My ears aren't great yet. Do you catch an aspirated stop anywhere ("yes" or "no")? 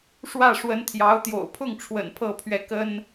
yes